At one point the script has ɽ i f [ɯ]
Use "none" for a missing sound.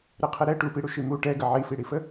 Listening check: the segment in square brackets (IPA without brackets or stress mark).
ə